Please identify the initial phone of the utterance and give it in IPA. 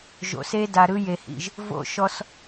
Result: ʒ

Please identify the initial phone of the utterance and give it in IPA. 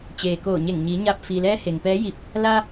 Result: t͡ɕ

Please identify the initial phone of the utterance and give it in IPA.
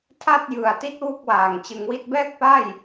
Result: tʰ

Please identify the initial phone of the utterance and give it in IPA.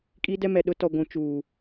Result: kʼ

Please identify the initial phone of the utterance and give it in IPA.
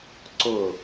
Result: ǀ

